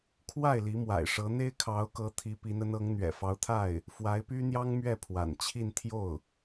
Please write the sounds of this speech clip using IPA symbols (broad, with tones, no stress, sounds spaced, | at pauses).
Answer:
kʰ w a˥˩ ɪ̯ l i˧˥ m w a̰˨˩ ɪ̯ ʂ ɤ˧˥ n̪ e˥ ɪ̯ kʰ ɑ˧˥ ʊ̯ k ɤ˧˥ t̪ʰ i˧˥ p i˧˥ n ə˧˥ n ɤ˧˥ ŋ n̪ ɥ ɛ̰˨˩ f ɑ˧˥ ʊ̯ t̪ʰ a˥˩ ɪ̯ | f w a˧˥ ɪ̯ p y˥ n̪ j ɑ˥ ŋ m ɥ ɛ˥˩ pʰ w a̰˨˩ n t͡ɕʰ i˥˧ n t̪ʰ j o˥˩ ʊ̯